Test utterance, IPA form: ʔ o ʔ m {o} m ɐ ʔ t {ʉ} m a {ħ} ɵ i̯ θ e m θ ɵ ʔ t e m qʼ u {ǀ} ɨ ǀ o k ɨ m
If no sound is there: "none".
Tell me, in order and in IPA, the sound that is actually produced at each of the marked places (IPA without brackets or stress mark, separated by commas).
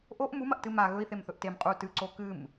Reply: u, ɨ, ɣ, t